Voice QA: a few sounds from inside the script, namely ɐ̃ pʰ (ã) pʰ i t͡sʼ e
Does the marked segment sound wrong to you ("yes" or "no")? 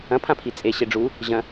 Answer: no